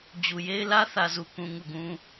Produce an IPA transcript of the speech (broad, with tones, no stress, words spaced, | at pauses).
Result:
d͡ʑu˨je˦ɪ̯ lä˦ θä˨ zu˨kũ˨ ŋu˦˨ɡũ˦